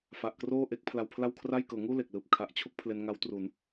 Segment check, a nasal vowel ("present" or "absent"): absent